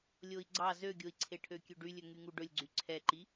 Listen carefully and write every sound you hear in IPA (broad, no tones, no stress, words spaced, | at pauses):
lʲoi̯ɡ͡ǀɑ zøɡʲoi̯ǀʰe ʈʰøkʲøɖylʲɵ ŋyŋuɖɵlʲɡ͡ǀy ǀʰɛǃi